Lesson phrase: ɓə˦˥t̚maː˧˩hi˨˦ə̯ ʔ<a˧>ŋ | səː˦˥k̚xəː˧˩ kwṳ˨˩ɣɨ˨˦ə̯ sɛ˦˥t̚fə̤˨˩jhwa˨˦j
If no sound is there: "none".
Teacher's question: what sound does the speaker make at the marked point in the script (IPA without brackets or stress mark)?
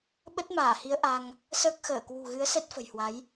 a˧